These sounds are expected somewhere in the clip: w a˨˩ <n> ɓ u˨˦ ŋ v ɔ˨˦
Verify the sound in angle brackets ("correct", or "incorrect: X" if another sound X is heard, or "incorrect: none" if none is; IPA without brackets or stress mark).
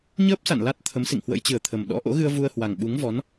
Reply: incorrect: ŋ